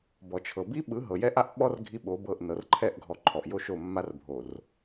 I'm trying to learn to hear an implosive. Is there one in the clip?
yes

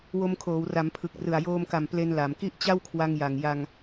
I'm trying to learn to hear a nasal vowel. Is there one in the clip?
no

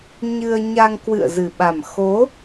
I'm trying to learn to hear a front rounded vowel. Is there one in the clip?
no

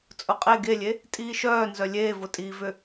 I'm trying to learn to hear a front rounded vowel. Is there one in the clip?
yes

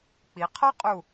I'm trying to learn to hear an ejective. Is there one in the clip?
yes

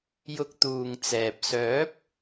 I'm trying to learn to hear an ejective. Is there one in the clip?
no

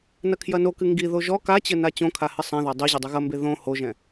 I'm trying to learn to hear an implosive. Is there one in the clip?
no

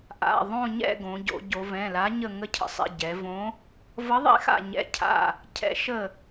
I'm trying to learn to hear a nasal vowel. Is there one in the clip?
yes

